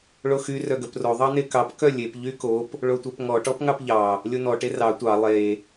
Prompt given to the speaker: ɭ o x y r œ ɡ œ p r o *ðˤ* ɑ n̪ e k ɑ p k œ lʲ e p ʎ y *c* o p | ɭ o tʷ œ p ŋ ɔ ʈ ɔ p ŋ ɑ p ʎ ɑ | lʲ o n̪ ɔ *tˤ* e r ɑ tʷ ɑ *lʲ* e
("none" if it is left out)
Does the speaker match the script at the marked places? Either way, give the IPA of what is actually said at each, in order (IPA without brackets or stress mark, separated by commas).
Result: ðˤ, k, ʈ, lˠ